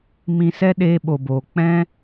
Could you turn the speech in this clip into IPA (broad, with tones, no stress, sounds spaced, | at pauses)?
m ĩ˧ s ɛ˦ ɗ eː˦ ɓ o˧ b oː˧ k͡p ɛ̃˦